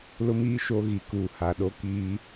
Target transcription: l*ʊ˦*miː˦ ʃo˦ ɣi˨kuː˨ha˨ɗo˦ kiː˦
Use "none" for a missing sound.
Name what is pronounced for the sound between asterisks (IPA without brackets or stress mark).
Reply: ʊ˦